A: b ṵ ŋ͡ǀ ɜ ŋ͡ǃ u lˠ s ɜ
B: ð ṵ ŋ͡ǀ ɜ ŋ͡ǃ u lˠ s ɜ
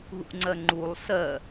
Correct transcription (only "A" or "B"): B